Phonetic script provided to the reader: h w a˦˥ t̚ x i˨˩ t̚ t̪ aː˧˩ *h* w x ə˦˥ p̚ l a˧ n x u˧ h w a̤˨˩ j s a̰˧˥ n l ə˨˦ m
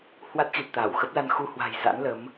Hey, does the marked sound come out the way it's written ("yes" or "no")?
no